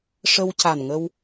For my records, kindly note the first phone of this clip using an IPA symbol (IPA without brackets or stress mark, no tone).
ʂ